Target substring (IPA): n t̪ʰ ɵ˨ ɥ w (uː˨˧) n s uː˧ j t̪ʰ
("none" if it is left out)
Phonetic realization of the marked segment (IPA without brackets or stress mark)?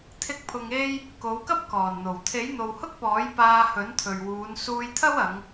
uː˨˧